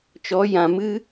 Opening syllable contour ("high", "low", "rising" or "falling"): rising